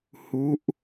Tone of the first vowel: rising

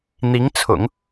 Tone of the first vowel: rising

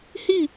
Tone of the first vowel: falling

